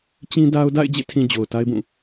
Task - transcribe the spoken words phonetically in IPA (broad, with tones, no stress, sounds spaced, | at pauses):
t͡ɕ ĩ˦ d a˦ ʊ̯ d a̰˦˨ ɪ̯ d͡ʑ ḛ˦˨ tʰ ĩ˨ d͡ʑ o˨ ʊ̯ t a˦ ɪ̯ b ũ˦˨